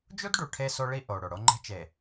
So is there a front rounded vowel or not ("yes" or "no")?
no